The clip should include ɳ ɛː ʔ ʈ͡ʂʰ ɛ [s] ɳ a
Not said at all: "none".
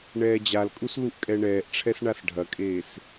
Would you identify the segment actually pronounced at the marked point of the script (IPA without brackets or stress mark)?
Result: s